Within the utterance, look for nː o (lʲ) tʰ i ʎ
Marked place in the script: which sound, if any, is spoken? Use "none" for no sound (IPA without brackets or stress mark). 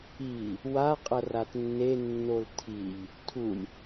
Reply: l